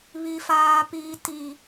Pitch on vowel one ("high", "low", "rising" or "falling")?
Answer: high